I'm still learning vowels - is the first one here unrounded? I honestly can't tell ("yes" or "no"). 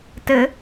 yes